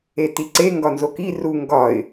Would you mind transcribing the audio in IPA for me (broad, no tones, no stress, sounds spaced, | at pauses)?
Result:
e t i ǀ e ŋ ɡ ɒ n z o k i r u ŋ ɡ ɒ ɪ̯